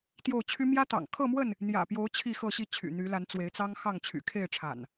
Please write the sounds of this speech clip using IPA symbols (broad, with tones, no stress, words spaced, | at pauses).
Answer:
t̪jo˥˨ʊ̯t͡ɕʰy˦ mjä˦t̪ɑ̰˨˩ŋ kʰɤ˥˨mwə˥˨n | n̪jä̰˨˩pjo˨˦ʊ̯ t͡ɕʰi˥˨xɤ˥˨ɕi˥˨t͡ɕʰy̰˨˩ n̪y˨˦la˨˦nt͡swe˨˦ɪ̯ t͡sɑ˦ŋxɑ˥˨ŋt͡ɕʰy̰˨˩ kʰe˥˨ɪ̯ʈ͡ʂʰa̰˨˩n